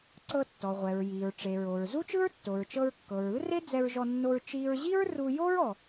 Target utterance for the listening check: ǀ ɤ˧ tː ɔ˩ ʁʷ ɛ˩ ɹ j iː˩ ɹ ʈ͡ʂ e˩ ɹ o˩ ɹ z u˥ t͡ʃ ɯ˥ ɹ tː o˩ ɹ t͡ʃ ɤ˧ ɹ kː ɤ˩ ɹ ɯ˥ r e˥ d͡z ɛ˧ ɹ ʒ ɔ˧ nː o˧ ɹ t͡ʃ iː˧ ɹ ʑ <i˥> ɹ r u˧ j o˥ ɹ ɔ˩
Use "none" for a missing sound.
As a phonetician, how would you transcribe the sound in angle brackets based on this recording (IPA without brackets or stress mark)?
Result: i˥